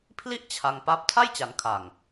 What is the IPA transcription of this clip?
pʰ l i˥˩ ʔ t͡ɕʰ a˧ ŋ p a˦˥ p̚ tʰ a˥˩ j t͡ɕ a˩˦ n kʰ a˨˩ ŋ

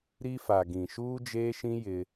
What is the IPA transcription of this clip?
ɾ i˦ f a˨ ɡ ĩ˨ ʃ uː˦ d͡ʒ eː˦ ʃ ĩ˦ j ɪ˦

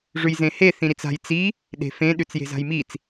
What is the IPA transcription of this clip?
ʐ ʉ j z ẽ h e θ ĩ ɾ i t͡s a̤ j t͡s i | ɗ e̤ f ẽ ɗ ʉ t͡s j e̤ z a̤ j m i t͡s

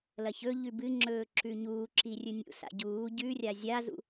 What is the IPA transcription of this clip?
l ɐ ç ɵ ʎ ʉ b ɨ ŋ͡ǁ ɵː ǁ ʉ ɲ uː ǁ i rʲ ɨ nʲ ṵ s a̰ ɟ uː ɟ ʉ rʲ a zʲ a z ṵ

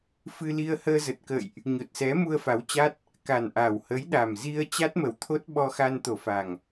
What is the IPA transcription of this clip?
f ɨ˧ l i˧ ə̯ h əː˧ z ə˨˩ t̚ k ə̰ː˧˨ j ʔ | ɲ o˨˩ t̚ s ɛ˨˦ m u˧ ə̯ f a˨˦ w t͡ɕ a˦˥ t̚ | k a˨˩ n ʔ a˨˩ w h ə˨˦ j ɗ a˨˩ m z i˧ ə̯ t͡ɕ a˦˥ t̚ m ə˧˩ w t̪ʰ o˦˥ t̚ ɓ ɔ˧ x a˧ n t̪ o˧˩ f a˨˩ ŋ

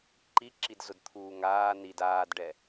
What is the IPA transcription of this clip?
ǃ i ǁ i d z ʊ d t̪ʰ uː ŋ aː n i d aː d ɖ ɛ

